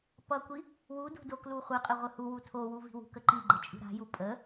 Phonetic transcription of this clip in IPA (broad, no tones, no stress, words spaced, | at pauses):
pʌkʷi | wudṳ dokluχʷəqʼə ʁʷəhuwu tʰowu vi̤wṳkə ǃi ɡ͡ǃət͡ʃʼṳɾa̤ju pʼə